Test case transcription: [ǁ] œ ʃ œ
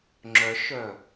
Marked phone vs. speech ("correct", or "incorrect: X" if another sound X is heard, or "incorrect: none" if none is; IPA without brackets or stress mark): incorrect: ŋ͡ǁ